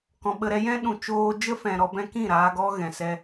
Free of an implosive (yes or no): no